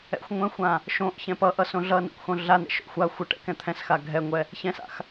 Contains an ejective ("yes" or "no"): no